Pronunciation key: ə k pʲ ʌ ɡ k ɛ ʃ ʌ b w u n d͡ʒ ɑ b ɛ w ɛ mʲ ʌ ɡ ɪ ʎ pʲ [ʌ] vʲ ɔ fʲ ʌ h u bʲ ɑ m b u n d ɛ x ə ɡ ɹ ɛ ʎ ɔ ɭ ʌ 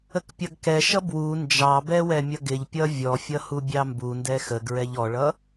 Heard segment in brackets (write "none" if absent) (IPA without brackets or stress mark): ʌ